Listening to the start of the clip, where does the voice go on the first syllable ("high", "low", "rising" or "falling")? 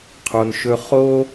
low